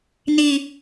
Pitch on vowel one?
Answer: low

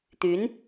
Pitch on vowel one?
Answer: rising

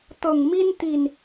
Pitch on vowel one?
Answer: low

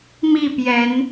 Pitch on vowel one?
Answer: falling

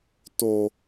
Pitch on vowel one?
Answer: low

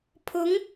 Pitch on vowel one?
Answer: rising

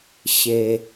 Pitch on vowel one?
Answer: low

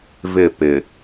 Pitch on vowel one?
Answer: falling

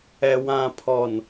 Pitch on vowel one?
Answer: low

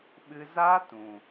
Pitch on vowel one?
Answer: high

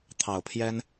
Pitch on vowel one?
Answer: low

